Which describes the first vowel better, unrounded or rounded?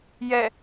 unrounded